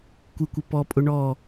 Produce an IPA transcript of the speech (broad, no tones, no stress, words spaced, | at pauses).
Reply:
kʷɪkʷɪ pɔpʼʊ ɳɔ